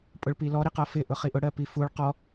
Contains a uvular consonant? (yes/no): yes